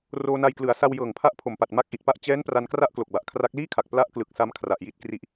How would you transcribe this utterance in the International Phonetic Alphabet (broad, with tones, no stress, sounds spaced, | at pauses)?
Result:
r oː˧ n a˧ j k l ɯ˩˦ a̯ s a˧ w j ɤː˨˩ ŋ pʰ a˦˥ ʔ pʰ o˨˩ m p a˨˩ t̚ m a˦˥ k̚ ʔ i˨˩ t̚ p a˥˩ ʔ t͡ɕ ɛː˦˥ n p r a˧ n k r a˥˩ ʔ k l o˨˩ k̚ b a˨˩ ʔ kʰ r a˦˥ k̚ l iː˥˩ kʰ a˨˩ k̚ p l a˦˥ ʔ k l ɯ˨˩ k̚ s a˦˥ m kʰ r a˨˩ ʔ j i˦˥ t̚ k r i˦˥ ʔ